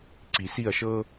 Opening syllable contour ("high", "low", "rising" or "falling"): low